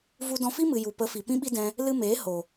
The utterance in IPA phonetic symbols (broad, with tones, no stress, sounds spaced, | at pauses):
v u˧ d ɔ̃˧ f i˦ m ɨ˨ j u˨ p ə˨˦ f i˨ p ĩ˦ ɓ i˦ d ɛ̃˦ | l ɨ˧ m eː˨˦ h o˨